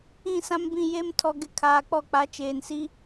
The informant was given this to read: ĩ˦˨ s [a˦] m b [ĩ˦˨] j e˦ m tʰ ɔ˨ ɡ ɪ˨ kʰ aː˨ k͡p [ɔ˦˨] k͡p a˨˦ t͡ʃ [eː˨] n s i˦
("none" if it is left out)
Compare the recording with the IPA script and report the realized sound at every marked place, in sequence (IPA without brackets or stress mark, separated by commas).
ã˦, ĩ˦˨, ɔ˦˨, eː˨